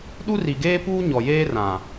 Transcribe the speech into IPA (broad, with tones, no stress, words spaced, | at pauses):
ɗu˦ri˨ɡeː˦puː˦ ɲɔ˨jeː˦rã˨